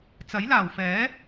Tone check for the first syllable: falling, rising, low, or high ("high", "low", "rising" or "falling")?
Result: rising